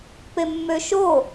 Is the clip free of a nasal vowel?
yes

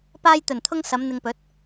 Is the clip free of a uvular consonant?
yes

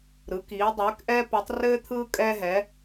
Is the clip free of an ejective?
no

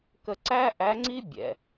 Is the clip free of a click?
no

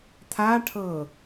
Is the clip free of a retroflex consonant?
no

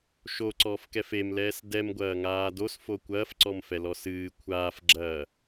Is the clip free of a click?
no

